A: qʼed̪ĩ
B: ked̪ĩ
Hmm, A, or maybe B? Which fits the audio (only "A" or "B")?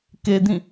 B